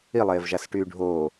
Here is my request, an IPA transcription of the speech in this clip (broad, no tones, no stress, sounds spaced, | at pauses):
i lˠ eː v ʒ a s ʈ yː ɖʱ oː